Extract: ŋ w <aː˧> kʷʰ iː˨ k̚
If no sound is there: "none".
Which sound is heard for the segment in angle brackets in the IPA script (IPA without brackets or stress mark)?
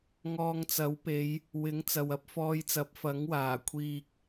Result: aː˨˩